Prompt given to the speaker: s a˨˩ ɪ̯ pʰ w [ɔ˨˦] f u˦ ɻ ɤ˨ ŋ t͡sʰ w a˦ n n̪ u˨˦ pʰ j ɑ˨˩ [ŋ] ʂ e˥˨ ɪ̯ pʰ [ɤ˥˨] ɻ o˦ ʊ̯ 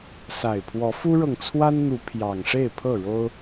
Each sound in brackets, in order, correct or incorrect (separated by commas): correct, correct, correct